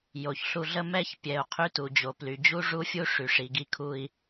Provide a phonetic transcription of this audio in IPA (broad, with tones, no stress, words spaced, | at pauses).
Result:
jo˨çɬu˧ɮə˦ mɛ˦ç pʲɛ˨u̯ qʰy˦tu˨d͡ʑo˨ ply˨d͡ʑu˦ʐu˦fʲu˦ ʂy˨ʂi˨ɡi˧kʰu˧i̯